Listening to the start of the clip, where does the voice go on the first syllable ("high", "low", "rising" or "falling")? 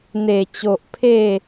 low